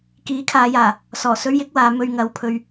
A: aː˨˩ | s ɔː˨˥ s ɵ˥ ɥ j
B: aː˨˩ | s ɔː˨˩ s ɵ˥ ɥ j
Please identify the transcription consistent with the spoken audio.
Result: B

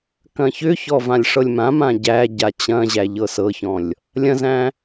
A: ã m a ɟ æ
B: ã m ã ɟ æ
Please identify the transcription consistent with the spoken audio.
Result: B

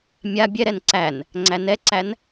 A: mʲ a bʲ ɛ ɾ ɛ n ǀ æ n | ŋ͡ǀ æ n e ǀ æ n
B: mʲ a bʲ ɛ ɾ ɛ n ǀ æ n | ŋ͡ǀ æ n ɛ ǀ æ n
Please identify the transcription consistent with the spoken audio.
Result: B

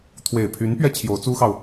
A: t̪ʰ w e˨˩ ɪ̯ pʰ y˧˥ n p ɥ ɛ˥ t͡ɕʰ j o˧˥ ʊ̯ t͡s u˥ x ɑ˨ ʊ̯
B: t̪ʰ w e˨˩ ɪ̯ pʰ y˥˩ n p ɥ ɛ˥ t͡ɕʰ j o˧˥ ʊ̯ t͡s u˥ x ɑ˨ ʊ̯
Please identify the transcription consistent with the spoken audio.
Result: A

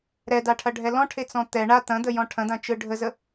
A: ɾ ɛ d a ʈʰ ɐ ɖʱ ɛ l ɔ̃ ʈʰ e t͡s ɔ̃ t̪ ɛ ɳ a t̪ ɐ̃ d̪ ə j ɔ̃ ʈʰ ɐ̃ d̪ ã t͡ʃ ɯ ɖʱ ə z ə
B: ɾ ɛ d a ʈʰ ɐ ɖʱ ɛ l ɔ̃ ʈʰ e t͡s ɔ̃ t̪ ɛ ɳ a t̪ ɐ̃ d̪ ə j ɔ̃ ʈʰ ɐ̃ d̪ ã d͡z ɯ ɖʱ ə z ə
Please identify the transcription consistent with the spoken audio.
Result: A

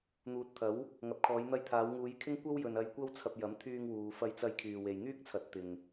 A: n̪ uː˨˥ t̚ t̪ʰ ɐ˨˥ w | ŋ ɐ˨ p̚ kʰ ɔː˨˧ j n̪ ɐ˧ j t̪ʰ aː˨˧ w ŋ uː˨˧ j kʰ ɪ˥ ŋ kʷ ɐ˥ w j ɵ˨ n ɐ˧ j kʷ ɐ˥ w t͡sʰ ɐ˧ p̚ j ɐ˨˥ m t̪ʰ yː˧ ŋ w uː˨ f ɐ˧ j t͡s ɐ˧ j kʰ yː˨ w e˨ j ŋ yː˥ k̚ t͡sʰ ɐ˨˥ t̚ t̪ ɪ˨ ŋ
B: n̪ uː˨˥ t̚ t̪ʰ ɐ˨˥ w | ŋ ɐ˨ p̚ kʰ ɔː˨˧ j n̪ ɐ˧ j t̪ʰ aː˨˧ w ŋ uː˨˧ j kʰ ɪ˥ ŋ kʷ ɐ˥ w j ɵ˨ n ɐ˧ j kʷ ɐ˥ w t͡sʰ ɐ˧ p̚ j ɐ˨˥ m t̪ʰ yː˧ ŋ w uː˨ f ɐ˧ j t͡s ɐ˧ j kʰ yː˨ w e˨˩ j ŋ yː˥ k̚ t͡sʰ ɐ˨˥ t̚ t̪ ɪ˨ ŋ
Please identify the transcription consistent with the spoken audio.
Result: A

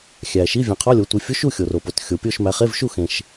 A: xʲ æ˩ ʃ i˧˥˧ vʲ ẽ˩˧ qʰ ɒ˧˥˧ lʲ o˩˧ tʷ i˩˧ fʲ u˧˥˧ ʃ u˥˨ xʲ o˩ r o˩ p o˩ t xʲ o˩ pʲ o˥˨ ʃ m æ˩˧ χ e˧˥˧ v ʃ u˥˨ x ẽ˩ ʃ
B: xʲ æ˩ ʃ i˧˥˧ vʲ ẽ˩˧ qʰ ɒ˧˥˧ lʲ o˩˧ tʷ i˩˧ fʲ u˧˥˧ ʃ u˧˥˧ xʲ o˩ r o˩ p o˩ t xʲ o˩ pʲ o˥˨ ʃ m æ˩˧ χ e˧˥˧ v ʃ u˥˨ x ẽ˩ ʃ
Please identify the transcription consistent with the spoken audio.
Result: A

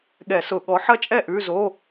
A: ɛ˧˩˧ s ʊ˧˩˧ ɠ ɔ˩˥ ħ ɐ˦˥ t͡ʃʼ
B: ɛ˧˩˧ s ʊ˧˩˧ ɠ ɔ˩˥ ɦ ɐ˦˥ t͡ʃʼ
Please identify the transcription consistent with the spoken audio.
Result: A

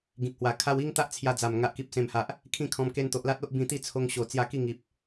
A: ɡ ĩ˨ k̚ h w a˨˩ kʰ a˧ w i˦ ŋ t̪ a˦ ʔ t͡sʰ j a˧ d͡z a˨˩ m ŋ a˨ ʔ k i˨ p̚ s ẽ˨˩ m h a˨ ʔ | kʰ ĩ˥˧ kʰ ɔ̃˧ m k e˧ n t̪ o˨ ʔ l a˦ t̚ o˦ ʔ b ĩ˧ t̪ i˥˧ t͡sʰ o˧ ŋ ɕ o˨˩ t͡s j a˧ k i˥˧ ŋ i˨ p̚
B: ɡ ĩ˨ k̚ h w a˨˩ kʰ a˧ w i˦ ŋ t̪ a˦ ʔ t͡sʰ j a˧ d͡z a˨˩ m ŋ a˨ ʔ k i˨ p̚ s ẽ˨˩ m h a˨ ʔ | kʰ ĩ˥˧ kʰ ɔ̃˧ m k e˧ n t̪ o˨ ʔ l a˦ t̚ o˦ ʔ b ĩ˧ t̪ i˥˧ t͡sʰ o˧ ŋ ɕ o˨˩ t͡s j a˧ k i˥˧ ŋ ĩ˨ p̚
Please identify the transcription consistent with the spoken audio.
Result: A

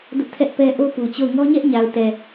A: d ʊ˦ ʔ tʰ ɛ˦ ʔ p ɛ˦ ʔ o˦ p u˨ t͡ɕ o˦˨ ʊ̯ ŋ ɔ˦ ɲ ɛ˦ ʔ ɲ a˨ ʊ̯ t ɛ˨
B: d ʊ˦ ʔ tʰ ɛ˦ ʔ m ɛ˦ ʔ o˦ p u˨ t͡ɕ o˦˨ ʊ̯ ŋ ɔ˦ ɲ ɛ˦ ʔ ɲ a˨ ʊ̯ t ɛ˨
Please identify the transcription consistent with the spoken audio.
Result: A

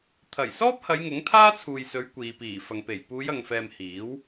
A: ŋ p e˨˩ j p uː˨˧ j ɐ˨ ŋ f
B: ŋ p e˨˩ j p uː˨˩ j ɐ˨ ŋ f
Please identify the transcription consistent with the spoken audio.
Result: A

